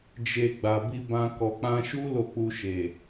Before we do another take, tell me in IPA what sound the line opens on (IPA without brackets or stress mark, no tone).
d͡ʒ